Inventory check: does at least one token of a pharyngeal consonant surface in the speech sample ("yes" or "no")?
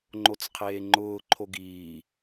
no